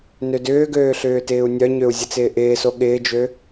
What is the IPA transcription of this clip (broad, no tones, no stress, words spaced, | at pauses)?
nødʏːɡøː ɬʏːtɪːu̯nʲœɲøu̯ zʲət͡sɪːʔɪːso ɠɪːd͡ʒø